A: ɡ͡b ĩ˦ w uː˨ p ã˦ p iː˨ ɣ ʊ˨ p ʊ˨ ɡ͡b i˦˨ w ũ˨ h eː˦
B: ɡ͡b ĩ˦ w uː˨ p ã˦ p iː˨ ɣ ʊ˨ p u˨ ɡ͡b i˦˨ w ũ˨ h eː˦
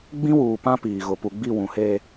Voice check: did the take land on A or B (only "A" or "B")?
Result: B